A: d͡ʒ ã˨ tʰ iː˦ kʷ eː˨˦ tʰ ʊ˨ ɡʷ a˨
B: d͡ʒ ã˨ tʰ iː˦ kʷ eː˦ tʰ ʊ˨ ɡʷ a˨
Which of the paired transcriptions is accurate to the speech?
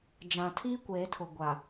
A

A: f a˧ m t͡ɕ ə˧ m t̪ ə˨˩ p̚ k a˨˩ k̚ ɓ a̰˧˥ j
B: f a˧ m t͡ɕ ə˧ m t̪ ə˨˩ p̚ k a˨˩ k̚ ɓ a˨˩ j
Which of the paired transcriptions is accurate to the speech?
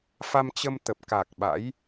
A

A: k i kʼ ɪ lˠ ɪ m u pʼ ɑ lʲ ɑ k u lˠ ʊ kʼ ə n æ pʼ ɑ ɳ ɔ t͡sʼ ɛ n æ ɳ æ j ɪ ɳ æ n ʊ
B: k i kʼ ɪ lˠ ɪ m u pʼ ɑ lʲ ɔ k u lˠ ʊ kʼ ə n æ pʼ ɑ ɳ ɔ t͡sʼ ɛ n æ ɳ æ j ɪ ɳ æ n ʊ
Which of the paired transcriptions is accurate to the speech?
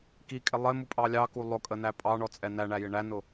A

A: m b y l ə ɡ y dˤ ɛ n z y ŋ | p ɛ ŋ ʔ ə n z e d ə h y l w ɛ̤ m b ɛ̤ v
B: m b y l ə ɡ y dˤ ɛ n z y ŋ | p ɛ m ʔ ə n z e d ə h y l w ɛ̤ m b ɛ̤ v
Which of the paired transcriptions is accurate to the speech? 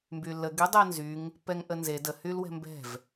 A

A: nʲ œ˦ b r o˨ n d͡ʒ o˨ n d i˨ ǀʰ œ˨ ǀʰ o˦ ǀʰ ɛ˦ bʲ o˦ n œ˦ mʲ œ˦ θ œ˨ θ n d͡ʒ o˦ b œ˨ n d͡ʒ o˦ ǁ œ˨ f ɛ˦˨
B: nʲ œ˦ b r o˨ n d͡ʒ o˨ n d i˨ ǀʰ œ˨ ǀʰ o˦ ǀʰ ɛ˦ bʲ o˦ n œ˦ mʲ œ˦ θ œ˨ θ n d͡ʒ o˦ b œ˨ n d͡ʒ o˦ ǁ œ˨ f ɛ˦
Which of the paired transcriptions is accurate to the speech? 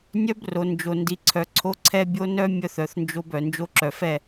A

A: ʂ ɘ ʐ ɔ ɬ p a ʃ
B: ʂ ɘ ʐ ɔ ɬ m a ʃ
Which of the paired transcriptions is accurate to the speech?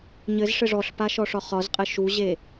A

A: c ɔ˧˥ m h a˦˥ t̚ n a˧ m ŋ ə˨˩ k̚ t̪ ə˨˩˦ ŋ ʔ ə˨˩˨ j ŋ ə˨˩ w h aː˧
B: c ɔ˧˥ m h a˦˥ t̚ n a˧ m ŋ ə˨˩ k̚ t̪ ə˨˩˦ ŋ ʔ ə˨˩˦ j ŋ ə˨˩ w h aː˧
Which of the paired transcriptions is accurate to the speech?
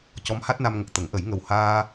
B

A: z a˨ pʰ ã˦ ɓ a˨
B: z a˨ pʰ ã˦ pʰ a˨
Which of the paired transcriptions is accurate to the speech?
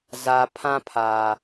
B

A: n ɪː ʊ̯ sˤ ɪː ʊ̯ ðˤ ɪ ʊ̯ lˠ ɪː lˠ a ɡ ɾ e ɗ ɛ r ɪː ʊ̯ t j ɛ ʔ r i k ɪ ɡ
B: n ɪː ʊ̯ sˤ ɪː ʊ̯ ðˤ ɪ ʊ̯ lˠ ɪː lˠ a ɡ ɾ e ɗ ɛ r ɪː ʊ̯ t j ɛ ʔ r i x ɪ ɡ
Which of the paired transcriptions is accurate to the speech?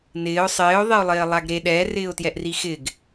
B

